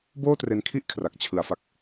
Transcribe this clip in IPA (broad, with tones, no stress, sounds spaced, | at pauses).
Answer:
b oː˥˩ t r e˧ n kʰ i˥˩ ʔ kʰ r a˨˩ k̚ t͡ɕʰ ɯ˩˦ a̯ f a˨˩ k̚